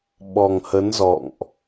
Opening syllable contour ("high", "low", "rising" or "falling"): low